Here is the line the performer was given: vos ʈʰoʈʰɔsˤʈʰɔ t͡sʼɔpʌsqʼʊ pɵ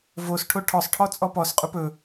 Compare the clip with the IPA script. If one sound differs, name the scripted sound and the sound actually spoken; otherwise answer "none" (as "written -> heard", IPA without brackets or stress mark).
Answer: ʌ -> ɔ